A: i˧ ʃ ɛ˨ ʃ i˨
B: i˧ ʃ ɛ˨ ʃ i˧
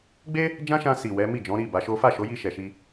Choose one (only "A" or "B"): B